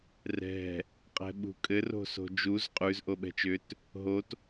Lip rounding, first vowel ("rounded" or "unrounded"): unrounded